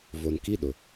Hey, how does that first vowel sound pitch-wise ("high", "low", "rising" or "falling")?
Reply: low